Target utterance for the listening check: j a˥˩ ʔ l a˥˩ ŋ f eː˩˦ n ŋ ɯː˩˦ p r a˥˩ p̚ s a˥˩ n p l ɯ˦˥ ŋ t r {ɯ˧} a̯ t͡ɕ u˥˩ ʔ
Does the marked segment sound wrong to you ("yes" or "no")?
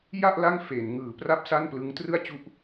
yes